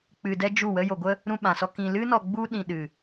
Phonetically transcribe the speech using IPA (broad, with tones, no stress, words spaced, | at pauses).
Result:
k͡pɨ˧dɛ˦d͡ʒu˦˨wə˦ jo˧ɡʷə˦ | ɾũ˧ɓã˨sɔ˧ kĩ˧ lɨ˦nɔ˧ ɡ͡bu˦ɗĩ˧ɗɨ˧